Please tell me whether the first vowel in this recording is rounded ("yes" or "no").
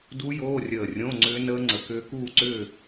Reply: yes